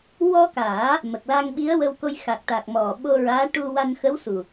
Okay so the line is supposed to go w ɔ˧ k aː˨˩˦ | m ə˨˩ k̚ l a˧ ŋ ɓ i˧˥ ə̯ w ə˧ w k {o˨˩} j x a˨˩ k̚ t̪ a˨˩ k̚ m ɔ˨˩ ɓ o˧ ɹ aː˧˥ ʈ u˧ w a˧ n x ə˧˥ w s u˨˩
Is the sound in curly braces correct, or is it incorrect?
incorrect